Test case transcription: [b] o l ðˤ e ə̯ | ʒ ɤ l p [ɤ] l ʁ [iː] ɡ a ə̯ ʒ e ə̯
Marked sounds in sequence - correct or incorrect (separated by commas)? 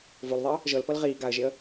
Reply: incorrect, correct, correct